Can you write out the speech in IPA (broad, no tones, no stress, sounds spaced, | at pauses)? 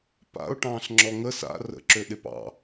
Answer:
p a̰ ʊ̯ ʈ ɑ̃ː ɬ ŋ͡ǁ ɔ ŋ ə s a̰ r ə̰ ǁ ø ɗ ɪ p ɑ̰